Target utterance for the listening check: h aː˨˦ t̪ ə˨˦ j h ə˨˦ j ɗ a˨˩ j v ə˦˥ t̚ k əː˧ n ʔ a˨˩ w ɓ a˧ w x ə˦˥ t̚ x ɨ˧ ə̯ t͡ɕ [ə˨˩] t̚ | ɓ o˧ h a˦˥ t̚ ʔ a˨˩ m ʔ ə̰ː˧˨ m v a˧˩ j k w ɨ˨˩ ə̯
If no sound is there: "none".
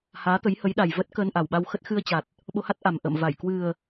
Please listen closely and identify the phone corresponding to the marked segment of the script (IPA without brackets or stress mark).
a˨˩